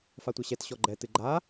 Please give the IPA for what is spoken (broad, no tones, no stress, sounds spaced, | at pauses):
f a tʷ ɛ ɕ ɛ t ɕ ɔ ɡ͡ǃ ɛ t ɨ ɡ͡ǃ a